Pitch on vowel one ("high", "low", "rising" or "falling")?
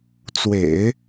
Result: low